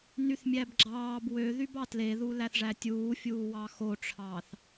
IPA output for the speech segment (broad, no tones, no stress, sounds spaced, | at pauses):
n y θ mʲ æ b ɡ͡ǁ ɑː b w ø ð y b ɑ t l e ð u l æ θ ʐ æ tʲ uː fʲ uː w ɑ x o ʈ͡ʂʰ ɑː θ